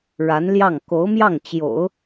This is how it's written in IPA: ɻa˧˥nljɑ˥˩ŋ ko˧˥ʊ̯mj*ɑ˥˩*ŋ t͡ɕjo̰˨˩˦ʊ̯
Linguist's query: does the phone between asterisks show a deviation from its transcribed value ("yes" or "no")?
no